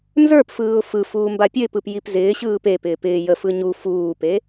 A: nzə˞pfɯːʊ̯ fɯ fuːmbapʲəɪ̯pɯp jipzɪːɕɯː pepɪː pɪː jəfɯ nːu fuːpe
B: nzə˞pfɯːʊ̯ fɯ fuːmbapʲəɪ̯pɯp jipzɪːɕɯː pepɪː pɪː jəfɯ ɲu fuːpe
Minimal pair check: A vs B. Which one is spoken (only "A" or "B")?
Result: B